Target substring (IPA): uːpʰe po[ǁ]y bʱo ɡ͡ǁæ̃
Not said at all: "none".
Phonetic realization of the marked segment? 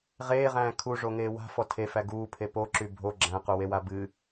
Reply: ǁ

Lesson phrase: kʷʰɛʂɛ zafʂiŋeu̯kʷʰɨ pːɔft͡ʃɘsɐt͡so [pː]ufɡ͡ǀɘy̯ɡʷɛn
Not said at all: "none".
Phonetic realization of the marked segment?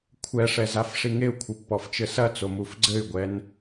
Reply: m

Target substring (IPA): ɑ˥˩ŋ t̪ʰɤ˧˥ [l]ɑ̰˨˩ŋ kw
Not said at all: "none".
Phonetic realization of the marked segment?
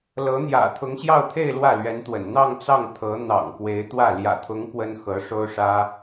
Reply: n̪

